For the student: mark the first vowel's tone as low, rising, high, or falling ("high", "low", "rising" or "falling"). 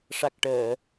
low